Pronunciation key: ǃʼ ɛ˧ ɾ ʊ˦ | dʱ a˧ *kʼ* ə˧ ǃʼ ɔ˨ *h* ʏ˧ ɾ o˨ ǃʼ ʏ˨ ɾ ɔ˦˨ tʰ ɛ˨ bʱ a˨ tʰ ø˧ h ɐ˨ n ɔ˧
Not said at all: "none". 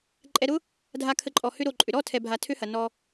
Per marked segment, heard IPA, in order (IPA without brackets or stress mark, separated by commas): kʰ, h